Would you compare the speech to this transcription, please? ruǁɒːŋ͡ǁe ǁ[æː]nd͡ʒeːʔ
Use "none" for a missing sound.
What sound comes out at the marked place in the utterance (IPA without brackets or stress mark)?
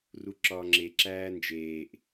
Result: æː